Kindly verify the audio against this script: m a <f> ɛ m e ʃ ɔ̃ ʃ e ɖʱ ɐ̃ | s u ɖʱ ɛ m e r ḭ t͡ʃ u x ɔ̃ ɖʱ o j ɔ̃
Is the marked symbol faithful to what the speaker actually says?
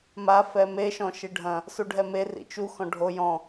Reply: yes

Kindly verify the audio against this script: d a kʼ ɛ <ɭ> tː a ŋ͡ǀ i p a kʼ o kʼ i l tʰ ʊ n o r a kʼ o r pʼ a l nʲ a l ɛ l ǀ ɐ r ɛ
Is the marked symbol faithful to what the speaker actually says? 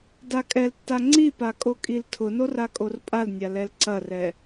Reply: no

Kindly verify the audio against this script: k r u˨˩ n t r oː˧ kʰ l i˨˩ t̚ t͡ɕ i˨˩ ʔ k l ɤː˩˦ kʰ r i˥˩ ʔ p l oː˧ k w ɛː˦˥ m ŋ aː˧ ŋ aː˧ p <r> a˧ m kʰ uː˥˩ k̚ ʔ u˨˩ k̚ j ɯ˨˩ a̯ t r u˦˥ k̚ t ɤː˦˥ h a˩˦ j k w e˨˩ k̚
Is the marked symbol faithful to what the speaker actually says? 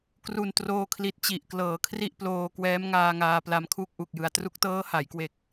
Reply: no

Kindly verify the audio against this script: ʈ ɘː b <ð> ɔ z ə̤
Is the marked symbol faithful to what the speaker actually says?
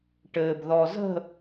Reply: yes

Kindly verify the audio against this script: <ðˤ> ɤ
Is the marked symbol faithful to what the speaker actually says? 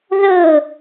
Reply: no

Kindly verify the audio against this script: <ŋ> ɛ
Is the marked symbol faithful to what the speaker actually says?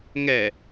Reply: yes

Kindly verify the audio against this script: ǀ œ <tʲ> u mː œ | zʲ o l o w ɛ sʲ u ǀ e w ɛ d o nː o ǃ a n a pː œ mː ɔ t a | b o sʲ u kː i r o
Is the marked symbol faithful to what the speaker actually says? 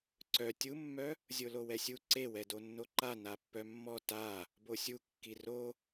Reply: yes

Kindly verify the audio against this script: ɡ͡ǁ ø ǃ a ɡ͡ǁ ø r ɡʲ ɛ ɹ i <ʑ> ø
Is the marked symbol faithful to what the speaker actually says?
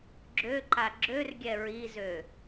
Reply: no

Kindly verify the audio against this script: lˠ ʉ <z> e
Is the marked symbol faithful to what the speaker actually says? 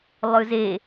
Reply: yes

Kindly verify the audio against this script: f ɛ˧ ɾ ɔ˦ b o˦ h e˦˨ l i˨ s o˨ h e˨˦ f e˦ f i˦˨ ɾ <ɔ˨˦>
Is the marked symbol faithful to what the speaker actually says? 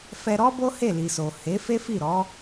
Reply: yes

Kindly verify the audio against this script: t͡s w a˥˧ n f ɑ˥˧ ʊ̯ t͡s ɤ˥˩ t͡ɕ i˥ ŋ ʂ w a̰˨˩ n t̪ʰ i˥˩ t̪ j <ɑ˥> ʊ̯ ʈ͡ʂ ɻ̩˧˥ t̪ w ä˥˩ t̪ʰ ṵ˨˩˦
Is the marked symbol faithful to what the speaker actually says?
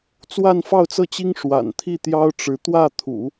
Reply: yes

